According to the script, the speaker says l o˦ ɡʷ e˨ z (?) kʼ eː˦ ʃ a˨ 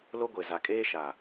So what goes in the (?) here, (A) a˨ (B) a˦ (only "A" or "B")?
A